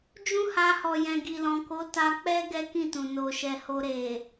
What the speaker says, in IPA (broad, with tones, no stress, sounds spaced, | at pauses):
d͡ʒ ũ˦ h a˧ h ɔ˨ j ɛ̃˨ ɡ i˨ l ɔ̃˨ k o˨˦ t a˧ k͡p ɛ˦ ɡ ɛ˦ k ĩ˦˨ t ũ˨ n o˨ ʃ ɛ˨ h o˧ ɾ e˨